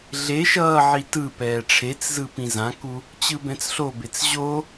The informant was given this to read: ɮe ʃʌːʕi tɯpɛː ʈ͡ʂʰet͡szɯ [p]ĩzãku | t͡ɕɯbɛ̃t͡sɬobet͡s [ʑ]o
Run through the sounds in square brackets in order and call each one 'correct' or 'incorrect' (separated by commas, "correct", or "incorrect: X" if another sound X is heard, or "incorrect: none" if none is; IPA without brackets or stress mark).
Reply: correct, correct